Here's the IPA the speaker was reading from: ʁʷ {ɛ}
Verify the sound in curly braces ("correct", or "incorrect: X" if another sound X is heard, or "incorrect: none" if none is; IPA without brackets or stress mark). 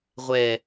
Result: correct